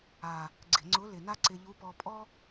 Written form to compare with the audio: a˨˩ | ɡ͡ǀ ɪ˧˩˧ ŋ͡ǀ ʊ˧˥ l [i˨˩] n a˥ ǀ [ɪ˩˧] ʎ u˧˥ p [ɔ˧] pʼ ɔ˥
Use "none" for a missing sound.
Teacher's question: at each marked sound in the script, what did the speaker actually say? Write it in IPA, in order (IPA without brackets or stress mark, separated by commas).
ɪ˨˩, ɪ˧, ɔ˧